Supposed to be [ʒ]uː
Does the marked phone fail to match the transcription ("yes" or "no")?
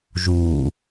no